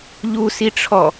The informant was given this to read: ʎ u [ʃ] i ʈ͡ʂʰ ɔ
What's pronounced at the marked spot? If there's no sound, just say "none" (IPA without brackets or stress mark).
s